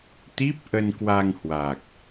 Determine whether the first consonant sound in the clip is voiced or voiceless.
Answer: voiceless